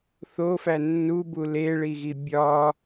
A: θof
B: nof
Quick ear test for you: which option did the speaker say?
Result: A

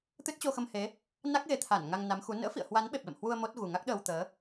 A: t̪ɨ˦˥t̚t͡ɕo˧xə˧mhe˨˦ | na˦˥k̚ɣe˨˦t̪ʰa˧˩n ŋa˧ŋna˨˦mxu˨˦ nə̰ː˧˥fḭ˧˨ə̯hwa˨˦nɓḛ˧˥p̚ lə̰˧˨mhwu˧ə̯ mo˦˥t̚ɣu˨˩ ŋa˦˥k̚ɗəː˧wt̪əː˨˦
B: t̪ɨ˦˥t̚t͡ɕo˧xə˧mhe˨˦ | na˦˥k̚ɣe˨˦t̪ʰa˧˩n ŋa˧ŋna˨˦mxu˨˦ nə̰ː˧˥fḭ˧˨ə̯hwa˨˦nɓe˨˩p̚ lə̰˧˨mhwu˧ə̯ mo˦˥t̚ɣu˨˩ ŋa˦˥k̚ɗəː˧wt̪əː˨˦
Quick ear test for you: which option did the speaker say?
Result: B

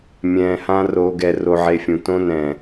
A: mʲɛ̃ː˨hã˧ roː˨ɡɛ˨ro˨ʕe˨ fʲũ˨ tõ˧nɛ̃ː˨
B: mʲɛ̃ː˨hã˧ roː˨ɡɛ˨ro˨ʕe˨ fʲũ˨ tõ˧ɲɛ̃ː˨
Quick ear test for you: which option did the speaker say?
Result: A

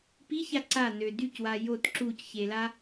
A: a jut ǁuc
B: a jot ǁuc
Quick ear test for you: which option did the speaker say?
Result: B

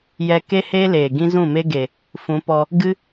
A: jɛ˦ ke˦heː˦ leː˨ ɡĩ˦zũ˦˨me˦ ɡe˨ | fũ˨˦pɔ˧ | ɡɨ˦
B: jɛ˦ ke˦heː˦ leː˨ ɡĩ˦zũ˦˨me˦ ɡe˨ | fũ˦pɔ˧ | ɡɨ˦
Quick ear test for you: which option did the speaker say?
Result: A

